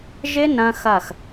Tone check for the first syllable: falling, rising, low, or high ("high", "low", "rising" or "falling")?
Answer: high